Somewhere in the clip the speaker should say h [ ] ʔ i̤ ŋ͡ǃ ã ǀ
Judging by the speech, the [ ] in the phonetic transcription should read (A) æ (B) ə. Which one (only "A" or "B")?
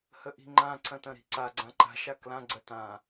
B